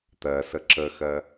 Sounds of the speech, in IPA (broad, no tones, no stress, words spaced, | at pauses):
t̪ɜsə ǁəxɜ